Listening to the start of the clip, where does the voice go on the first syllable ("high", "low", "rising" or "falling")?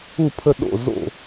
falling